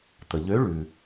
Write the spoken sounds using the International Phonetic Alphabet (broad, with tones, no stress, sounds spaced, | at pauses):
t̪ ə˩ ʎ ø˨˦ ɭ ʉ˩